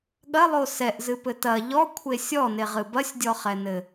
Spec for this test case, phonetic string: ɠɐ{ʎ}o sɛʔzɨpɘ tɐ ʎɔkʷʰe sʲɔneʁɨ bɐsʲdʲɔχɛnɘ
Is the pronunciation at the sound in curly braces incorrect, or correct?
incorrect